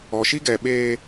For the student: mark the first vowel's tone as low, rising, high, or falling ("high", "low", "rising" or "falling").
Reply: low